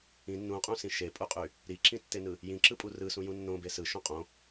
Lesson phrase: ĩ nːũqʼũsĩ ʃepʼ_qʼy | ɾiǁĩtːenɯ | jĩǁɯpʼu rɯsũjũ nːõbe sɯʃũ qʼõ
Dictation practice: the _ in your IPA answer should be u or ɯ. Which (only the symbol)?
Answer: u